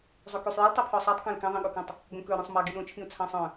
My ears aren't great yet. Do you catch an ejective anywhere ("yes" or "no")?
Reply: no